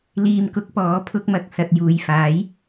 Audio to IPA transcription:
l iː˨ m k ʊ˨˥ k̚ p ɔː˨˥ pʰ ʊ˧ k̚ m ɐ˨ k̚ s ɐ˨ t̚ j uː˨ j f aː˨˥ j

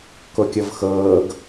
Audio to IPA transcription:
k o kʲ ɤ v x ɤː ɡ

